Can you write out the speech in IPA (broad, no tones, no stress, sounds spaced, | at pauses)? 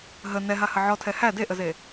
ɦ ə n ɛ ɦ a h ə ʕ ɔ tʰ ɛ h æ d e ʔ ə z e